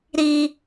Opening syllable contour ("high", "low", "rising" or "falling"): high